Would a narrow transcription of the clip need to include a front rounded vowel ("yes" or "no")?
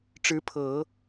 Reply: no